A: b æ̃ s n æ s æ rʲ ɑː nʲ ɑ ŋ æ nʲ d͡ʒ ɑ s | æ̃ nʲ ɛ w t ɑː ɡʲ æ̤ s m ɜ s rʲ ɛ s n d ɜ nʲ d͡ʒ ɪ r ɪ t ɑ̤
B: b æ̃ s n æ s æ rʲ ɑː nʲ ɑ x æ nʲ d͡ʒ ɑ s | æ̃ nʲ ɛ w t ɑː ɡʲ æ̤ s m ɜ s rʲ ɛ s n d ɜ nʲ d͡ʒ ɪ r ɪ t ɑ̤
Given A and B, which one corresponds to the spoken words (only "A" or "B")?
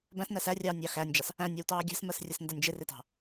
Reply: B